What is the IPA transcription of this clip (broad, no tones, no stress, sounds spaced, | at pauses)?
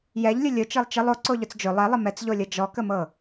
j ɛ ʎ lʲ ʊ lʲ ʊ t͡ʃ ɤ lˠ t͡ʃ ə lˠ o ǀ o ʎ ʊ t͡s d͡ʒ ʊ lˠ ɛ lˠ ə m ɛ t͡s ʎ o lʲ ɤ d͡ʒ ɔ k ə m ɤ